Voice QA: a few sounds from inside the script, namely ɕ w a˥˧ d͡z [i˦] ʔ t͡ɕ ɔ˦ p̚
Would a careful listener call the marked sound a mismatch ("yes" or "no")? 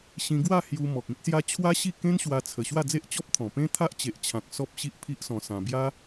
yes